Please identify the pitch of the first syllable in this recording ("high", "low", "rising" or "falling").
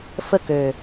falling